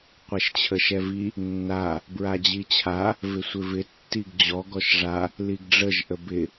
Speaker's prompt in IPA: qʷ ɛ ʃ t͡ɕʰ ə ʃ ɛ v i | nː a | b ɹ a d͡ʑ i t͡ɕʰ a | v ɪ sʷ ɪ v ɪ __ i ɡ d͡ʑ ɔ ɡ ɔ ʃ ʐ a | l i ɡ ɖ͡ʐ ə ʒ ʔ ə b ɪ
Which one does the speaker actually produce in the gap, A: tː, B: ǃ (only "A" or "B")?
A